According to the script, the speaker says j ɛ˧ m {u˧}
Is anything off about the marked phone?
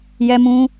yes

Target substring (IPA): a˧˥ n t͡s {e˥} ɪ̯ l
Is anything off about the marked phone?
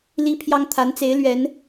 yes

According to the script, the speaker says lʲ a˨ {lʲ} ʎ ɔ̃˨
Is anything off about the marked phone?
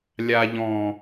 yes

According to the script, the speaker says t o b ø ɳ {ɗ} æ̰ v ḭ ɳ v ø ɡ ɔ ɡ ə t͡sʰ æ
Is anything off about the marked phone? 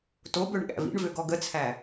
yes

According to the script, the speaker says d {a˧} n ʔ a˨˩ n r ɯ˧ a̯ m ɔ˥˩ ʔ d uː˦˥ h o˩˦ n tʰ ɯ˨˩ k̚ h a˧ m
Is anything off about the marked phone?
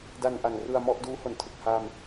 no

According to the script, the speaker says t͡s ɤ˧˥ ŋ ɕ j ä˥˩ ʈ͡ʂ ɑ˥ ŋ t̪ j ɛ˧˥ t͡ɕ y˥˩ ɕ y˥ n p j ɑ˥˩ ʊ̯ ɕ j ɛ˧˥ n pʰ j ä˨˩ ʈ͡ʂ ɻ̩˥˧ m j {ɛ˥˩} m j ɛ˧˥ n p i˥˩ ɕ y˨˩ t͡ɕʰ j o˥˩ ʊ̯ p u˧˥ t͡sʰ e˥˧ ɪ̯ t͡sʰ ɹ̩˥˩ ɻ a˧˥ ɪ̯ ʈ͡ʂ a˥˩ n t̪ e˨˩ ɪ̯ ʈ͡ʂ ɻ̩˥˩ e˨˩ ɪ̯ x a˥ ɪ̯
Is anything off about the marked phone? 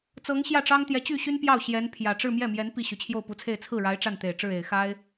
no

